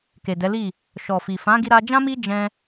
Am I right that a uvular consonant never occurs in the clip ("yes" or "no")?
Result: yes